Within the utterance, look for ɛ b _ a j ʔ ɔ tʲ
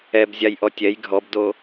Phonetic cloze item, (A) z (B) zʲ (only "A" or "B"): B